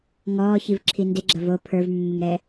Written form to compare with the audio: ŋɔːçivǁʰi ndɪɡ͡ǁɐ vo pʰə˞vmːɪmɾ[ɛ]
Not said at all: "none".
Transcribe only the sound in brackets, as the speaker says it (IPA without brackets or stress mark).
ɛ